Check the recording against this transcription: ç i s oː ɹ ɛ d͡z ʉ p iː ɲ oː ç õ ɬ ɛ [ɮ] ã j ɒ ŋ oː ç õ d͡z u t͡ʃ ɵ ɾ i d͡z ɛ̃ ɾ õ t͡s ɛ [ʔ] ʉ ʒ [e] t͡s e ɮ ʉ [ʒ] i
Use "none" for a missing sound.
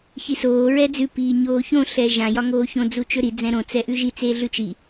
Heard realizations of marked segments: ʒ, ʔ, i, t͡ʃ

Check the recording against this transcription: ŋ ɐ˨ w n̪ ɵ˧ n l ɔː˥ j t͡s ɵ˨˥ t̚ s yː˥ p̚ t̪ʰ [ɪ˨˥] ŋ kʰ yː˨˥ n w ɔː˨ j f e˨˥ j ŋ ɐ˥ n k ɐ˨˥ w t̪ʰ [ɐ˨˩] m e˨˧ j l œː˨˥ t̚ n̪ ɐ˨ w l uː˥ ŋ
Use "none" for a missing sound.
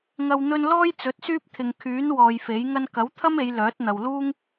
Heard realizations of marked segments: ɪ˨, ɐ˥

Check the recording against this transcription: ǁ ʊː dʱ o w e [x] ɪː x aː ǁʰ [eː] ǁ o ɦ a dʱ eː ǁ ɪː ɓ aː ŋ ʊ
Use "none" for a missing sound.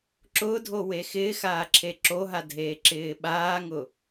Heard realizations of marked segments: x, e

